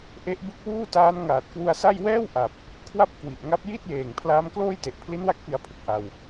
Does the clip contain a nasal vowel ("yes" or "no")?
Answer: no